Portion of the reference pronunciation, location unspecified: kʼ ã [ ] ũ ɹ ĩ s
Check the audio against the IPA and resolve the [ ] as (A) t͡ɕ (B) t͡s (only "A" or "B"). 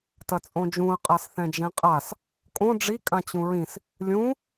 A